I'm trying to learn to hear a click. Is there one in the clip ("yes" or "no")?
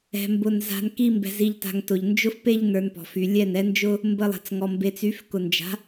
no